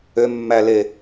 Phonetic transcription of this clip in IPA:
ø mː æ l e

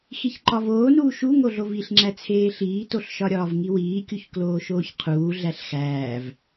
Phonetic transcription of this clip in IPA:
x i ç ǃ ɒ v oː n uː ʃ u ŋ o ɮ o v i ɬ ŋ͡ǁ æ t͡sʰ eː ɬ iː t o ɬ ʃ ɒ ɾʲ ɒː v ŋ i w iː kʲ u ç k l oː ʃ oː ç qʰ uː ɮ æ ɬ x æː v

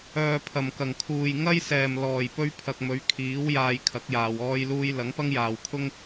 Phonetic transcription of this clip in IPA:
œː˨ pʰ ɐ˨˩ m k ɐ˨˩ ŋ kʰ uː˨ j ŋ ɐ˥ j s ɛː˨˩ m l ɔː˨˩ j p ɵ˧ ɥ pʰ ɐ˨ k̚ m ɵ˨˥ ɥ kʰ iː˨˥ w j aː˧ j kʰ ɐ˨˥ k̚ j aː˨ w ɔː˧ j l uː˧ j l ɐ˨˥ ŋ p ɐ˥ ŋ j aː˨ w kʰ ʊ˥ ŋ

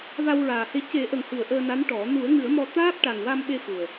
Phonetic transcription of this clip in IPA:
v a˧ w ɹ aː˨˩ h e˧ c e˨˩˦ ʔ ə˨˩ ŋ h ɨ˨˩˨ ə̯ ʔ əː˧ n a˧˥ n ʈ ɔ˨˩˦ n u˨˩˦ ə̯ ŋ ɨ˨˩˦ ə̯ m ɔ˧ t̪ aː˦˥ p̚ ʈ a˨˩ ŋ w a˧ m ɓ e˧ x u˨˩ ə̯

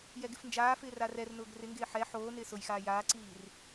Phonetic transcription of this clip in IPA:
j ɛ ɡ ɪ f n d͡ʒ aː f ɪː r a r ɛ r n ʊː ɡ r ɪ ŋ ɡ ɪː ħ ɛ ħ oː n ɪː s ʊ j x aː j aː ǀ iː r

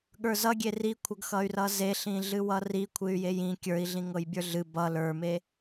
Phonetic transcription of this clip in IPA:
ɠ ə˞ z ʌ ɡʲ e r i kʷʰ ɤ ɡ x ʌ y̯ r ʌ z e ɬ ĩ ɮ ɨ w ʌ r i kʷʰ ɨ y̯ j e j ĩ kʲ ə˞ i̯ ɮ ĩ ŋ ɤ j bʲ ə˞ ɮ ɨ b ʌ l ə˞ m e

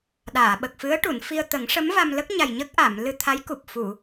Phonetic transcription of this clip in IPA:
ɗ aː˨˩˨ ɓ ə˨˩ k̚ f ɨ˧˥ ə̯ ʈ u˨˩˨ n f i˧ ə̯ t̪ ə˨˩˦ ŋ ʂ ə˧˥ m v a˧ m l ə˦˥ k̚ ɲ a˨˩ j ɲ ə˦˥ k̚ ʔ a˨˩˨ m l ɨ˧ t̪ʰ a˧˥ j k u˨˩ p̚ f u˨˩˨

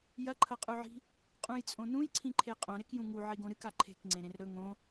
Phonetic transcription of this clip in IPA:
j ɐ ǃʰ ɐ qʼ ʉ ʕ i̤ | qʼ ũ j t͡sʼ õ n ũ j ǀʰ ĩ ǃʰ e qʼ õ ɾ e k j ũ ŋ u ʕ i ɡ õ ɾ ɨ k a ǃʰ e̤ k ŋ͡ǀ ẽ ɾ ẽ r ɾ ɵ ŋ õ

